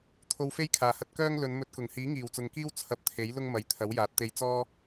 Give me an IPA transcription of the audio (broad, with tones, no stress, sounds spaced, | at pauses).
t̪ʰ o˧ w f e˥ j kʰ aː˨˩ h ɐ˧ t̚ k œː˥ ŋ l ɵ˨˧ n m ɵ˧ t̚ k ʊ˨˩ ŋ h iː˨˥ ŋ iː˨˩ w t͡s ʊ˨ ŋ k iː˥ w t͡sʰ ɐ˧ p̚ t̪ʰ e˨˥ j l ʊ˥ ŋ m ɐ˨˧ j t̪ʰ ɐ˨˥ w j aː˨˥ t̚ t̪ e˧ j t͡s ɔː˥